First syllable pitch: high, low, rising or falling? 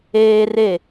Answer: high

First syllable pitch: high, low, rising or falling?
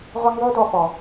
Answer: high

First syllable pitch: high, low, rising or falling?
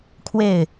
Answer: falling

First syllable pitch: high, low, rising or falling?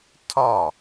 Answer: falling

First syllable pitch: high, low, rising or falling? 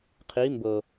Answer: rising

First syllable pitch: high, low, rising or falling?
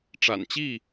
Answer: low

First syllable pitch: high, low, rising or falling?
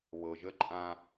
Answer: low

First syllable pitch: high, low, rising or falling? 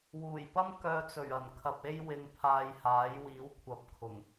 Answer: low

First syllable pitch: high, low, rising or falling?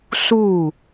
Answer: falling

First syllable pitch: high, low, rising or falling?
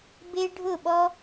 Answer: high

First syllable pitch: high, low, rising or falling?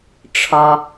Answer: low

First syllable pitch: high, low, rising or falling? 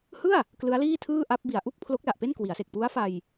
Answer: falling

